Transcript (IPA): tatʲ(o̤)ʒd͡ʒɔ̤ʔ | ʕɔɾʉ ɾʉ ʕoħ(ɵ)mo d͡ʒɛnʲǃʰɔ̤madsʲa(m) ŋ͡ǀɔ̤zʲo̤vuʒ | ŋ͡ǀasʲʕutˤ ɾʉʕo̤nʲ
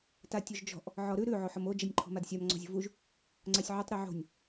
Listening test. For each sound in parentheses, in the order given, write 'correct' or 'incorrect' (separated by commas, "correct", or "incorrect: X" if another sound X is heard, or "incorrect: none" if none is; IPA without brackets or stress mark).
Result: incorrect: o, incorrect: ɔ, correct